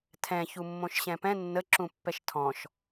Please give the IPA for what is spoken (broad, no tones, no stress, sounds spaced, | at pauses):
tʰ ɛ̃ ç u mː õ ʃ ɕ ɛ̃ p ɛ̃ nː ə ǁ ũ pː ɛ ʃ tʰ ɔ̃ ʃ